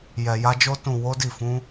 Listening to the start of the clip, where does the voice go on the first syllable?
low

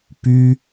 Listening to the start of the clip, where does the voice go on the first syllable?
high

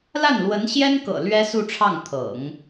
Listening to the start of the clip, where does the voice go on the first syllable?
falling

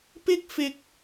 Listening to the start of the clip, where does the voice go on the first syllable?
high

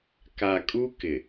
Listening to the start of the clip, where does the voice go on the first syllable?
low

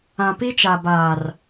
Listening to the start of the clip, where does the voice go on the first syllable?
low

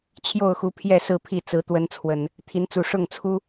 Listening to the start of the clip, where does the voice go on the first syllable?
falling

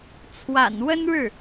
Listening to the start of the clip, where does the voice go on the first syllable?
low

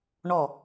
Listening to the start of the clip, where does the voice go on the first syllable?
falling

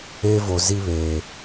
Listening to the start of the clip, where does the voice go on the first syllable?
high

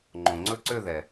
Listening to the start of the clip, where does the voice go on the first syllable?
low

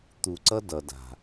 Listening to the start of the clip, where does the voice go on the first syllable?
low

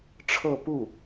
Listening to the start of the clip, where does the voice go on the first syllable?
falling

